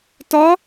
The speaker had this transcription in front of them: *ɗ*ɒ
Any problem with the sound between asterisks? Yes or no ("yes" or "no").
yes